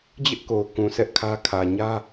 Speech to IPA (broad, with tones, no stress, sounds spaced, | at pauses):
d͡ʑ ɪ˦ ʔ k o˨ ʊ̯ k ũ˨ sʰ ɛ˦ ʔ kʰ ä˦ kʰ ä˨ ɲ ä˦